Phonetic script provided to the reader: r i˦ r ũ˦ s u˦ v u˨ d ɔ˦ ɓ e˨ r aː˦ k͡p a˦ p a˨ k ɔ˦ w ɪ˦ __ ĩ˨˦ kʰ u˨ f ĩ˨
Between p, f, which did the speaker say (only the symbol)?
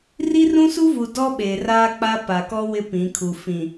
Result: p